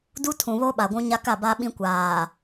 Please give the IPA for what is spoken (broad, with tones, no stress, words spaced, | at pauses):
du˦ tʰũ˨βo˦ ɓa˨ɡʷũ˦ɲa˦ ka˦˨ba˦ɓĩ˦ kʷaː˨